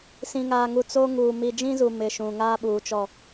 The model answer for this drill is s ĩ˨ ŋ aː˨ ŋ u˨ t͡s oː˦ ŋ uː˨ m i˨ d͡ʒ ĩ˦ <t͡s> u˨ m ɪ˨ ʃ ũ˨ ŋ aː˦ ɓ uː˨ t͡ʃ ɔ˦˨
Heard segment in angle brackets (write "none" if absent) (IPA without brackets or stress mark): z